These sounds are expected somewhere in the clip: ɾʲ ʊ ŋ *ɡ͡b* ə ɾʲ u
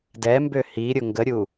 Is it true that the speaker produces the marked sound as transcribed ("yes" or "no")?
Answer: no